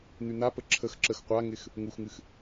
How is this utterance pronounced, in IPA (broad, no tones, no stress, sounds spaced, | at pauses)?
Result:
n̪ y n̪ a p ə ǁʰ ə x ǁ ə x qʷ a ŋ ɪ x | ŋ u x ŋ ɨ x